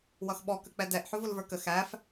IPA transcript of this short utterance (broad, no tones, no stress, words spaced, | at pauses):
wʌxɓɔ kək͡pɛdɛʔ ħʊvʊlvə˞kə xæf